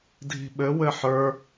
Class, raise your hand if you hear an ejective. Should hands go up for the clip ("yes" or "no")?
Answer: no